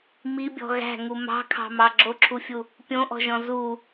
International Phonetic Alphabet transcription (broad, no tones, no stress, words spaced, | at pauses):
mibʲɔ̤ ɣæ̤ŋu mɑ̤kʰɑ̤mɑ ɡ͡ǁoǁʰufʲu | pʲõʔɔ̤ʒɔ̃ zu